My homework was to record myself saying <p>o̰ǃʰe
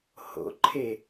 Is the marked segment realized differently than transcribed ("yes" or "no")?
yes